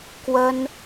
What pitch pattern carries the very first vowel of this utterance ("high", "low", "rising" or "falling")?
high